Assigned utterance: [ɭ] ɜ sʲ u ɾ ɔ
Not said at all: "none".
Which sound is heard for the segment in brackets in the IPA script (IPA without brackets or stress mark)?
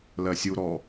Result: l